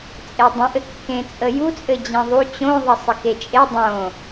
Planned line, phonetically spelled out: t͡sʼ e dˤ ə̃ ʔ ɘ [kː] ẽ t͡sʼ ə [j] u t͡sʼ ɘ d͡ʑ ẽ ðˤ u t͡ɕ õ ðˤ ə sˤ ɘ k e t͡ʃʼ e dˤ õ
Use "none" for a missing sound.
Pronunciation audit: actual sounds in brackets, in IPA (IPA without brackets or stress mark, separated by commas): kː, j